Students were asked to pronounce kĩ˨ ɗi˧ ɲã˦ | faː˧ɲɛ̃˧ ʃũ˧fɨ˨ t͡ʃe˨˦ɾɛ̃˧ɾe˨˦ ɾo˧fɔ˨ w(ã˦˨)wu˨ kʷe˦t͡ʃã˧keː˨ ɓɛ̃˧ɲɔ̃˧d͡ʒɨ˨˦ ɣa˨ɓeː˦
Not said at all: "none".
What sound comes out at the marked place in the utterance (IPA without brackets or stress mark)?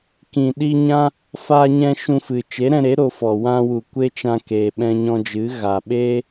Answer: ã˧